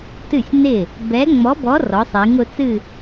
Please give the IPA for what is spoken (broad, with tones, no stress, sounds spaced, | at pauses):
t ɨ˥˩ sʲ n ɪ˥˩ | b ɛ˨˦ ŋ͡m ɔ˨˦ b ɔ˨˦ r ɔ˨˦ sˤ i˨˦ ŋ ʊ˨˦ t͡s ɨ˥˧